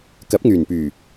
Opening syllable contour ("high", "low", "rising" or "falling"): rising